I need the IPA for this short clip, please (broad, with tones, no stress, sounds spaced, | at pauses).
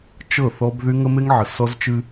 t͡ʃ ɤ˦˨ θ ɔ˦ b ð y˦ ŋ ə˦ m e˦ ŋ ʕ ə˨ s ɔ˦ z t͡ʃ ɨ˦